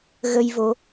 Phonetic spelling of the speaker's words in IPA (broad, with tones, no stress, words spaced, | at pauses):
ɣə˧jvo˨˦